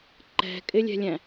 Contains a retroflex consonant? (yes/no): no